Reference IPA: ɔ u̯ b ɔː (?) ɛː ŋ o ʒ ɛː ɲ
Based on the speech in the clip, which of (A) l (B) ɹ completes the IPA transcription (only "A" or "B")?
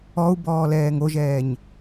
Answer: A